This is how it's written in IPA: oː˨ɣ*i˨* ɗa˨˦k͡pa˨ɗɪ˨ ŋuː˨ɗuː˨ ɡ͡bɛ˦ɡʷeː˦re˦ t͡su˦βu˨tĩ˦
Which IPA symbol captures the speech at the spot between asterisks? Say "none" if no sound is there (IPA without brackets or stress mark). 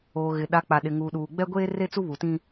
ɪ˨